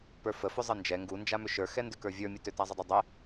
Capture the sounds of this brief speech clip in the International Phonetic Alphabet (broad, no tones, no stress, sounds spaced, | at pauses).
p ə˞ f ə f ʏ zˤ ə n d͡ʒ ɛ ŋ ɡ u n d͡ʒ a m ʏ ʃ ə˞ x ɛ n d ʏ k ə˞ vʲ ə˞ mʲ ə t ʏ t a zˤ ɘ dˤ ə˞ dˤ ɛ